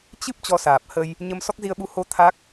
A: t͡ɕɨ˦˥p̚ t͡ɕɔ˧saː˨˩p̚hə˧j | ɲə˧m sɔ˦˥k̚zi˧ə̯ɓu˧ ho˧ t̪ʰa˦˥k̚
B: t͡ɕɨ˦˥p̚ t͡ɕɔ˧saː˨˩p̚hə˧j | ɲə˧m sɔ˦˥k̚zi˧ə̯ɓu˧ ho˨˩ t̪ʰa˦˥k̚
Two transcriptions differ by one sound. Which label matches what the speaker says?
A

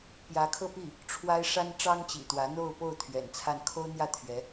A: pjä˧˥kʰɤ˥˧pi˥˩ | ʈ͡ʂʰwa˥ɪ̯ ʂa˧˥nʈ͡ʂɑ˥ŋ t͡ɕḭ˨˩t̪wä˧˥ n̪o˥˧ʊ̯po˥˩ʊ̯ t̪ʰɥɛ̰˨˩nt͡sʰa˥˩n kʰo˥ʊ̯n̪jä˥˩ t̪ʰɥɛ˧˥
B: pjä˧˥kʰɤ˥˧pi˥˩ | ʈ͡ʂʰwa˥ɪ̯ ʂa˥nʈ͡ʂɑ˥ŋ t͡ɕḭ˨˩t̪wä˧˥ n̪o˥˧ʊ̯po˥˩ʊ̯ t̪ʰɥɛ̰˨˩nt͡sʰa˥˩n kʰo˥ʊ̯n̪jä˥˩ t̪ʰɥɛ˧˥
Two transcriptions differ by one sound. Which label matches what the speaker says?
B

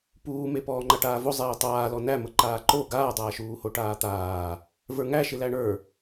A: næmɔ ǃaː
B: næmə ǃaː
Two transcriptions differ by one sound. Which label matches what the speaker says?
B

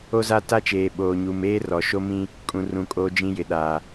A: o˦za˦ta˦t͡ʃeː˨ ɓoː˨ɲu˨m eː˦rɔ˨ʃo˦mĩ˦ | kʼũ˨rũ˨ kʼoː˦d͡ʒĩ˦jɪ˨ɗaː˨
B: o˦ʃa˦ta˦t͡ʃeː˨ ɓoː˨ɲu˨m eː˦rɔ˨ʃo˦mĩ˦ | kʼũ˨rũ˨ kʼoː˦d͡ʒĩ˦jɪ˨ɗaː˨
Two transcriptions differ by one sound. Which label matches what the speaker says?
A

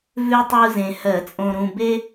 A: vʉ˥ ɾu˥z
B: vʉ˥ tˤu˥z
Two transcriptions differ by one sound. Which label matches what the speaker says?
B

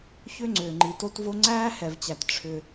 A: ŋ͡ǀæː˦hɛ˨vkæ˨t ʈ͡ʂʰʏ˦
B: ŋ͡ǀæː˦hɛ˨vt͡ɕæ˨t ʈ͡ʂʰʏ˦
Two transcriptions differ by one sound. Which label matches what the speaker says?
B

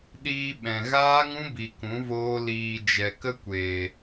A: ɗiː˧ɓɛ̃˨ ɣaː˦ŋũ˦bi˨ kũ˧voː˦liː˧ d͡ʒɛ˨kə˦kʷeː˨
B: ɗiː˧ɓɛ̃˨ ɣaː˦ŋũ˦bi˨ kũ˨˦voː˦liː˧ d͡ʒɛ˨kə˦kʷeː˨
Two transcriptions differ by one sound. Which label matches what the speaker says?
B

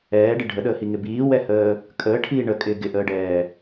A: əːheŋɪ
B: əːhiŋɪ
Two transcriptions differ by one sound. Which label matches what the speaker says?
B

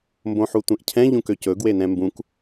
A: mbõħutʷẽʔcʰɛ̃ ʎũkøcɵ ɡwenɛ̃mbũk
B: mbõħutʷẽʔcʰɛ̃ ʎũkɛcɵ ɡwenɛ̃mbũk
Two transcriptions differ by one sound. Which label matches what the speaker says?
A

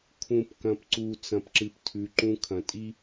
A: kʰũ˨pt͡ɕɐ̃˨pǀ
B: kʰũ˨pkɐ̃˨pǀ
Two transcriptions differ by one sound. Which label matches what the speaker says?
B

